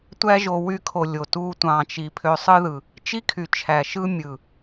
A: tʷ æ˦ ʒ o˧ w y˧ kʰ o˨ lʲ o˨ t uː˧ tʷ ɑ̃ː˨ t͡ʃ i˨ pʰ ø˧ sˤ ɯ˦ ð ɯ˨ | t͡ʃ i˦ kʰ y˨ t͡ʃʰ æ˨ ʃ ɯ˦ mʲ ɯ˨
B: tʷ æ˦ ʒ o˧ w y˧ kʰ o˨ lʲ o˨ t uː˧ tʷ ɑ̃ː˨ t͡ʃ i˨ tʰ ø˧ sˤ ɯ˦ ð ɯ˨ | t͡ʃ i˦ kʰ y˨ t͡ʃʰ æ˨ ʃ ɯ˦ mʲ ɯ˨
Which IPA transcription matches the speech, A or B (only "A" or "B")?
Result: A